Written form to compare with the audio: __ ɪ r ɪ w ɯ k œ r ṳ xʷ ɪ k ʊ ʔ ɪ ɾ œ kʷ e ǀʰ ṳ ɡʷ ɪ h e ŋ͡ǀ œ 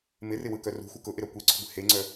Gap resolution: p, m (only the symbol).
m